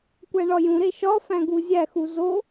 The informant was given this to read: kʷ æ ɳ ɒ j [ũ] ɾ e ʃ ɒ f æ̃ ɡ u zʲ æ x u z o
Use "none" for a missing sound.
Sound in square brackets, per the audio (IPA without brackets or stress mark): ũ